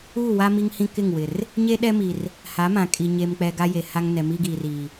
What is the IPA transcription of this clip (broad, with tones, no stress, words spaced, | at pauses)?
uː˦˨wa˦ mi˦ŋhĩ˦ kɪ˦˨ŋwɪ˨r | ɲe˦ɗɛ˦ mi˨r | ha˨˦mã˨kʼi˨ ɲe˨mk͡pɛ˨ ɡa˦je˨ha˦ŋ nɛ˨mi˦ɡiː˨riː˨